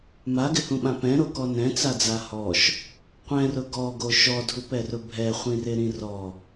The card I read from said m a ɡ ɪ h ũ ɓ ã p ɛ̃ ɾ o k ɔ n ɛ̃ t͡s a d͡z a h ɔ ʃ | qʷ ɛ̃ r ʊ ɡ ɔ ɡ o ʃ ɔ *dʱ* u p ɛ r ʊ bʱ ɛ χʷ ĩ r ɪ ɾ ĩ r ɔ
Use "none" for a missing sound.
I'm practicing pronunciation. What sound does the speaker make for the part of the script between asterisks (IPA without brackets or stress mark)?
dʱ